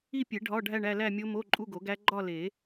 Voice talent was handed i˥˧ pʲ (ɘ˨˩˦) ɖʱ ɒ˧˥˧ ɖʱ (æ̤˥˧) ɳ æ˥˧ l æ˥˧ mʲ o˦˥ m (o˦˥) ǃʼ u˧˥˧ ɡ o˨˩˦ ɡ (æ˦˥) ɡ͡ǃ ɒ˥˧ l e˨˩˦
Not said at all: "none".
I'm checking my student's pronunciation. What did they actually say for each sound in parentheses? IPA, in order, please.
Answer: e˨˩˦, æ˥˧, o˧˥˧, æ˦˥

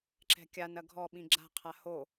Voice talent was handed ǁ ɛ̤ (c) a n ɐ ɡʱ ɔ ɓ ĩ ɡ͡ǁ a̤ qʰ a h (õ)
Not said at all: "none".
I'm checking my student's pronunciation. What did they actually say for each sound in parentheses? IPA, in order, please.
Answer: kʲ, o

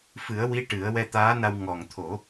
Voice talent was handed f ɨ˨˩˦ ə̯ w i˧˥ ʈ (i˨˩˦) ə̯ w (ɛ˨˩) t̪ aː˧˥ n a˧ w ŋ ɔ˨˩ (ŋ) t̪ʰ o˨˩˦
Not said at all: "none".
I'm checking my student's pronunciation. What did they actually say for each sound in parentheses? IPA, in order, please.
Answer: ɨ˨˩˦, ɛ˧, ŋ

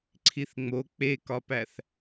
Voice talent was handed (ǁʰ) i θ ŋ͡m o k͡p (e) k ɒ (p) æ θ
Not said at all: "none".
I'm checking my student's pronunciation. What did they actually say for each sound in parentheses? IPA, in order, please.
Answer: ǀʰ, e, p

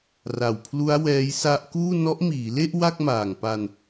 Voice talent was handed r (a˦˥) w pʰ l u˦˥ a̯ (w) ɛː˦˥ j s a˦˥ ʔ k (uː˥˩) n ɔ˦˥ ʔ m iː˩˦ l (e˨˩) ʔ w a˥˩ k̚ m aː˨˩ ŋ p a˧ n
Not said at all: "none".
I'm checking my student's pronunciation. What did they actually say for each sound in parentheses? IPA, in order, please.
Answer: a˨˩, w, uː˥˩, e˥˩

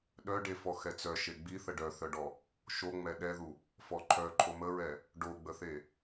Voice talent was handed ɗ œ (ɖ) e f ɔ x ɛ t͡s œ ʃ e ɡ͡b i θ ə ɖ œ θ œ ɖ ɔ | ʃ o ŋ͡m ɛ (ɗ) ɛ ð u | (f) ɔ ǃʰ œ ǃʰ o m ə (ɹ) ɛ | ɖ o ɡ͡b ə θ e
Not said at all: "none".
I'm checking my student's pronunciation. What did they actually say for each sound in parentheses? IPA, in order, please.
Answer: ɖ, ɗ, f, ɹ

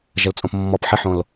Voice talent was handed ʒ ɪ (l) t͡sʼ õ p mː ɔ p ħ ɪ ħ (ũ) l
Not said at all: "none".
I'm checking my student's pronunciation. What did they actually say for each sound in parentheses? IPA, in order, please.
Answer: l, õ

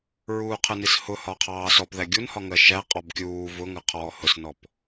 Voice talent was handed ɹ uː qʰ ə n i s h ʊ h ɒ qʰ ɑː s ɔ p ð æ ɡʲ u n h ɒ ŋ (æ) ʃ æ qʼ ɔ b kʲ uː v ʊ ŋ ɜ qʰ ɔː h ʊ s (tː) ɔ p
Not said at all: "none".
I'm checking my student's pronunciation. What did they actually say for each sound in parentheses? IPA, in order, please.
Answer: ɜ, n

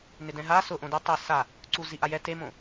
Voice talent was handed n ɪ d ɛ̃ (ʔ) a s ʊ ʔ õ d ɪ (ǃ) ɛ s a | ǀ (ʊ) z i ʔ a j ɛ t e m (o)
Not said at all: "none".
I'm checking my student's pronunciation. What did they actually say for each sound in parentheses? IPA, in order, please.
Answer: ɦ, tˤ, u, õ

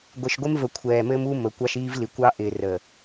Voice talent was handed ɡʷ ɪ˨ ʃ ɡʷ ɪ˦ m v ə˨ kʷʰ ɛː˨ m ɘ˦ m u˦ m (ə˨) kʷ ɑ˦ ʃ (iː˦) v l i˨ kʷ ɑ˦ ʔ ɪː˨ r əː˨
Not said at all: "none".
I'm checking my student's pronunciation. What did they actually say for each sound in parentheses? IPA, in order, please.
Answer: ə˨, iː˦

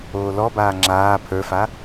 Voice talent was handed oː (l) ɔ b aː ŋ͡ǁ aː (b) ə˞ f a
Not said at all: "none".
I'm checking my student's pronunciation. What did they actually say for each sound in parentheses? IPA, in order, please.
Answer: l, pʰ

